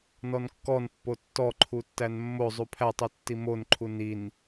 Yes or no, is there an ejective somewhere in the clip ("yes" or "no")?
no